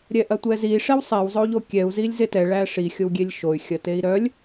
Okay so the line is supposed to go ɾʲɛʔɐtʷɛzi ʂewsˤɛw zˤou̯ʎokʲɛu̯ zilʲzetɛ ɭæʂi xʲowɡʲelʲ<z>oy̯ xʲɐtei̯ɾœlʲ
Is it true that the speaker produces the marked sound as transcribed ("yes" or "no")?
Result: no